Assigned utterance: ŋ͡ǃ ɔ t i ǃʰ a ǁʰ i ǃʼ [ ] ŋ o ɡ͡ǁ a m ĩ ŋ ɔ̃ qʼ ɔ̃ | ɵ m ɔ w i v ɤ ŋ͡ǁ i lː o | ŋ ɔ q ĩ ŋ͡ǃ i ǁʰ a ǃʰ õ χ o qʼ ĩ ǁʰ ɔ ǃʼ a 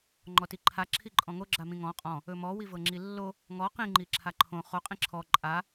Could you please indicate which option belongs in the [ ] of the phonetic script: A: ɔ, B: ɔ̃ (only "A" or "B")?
B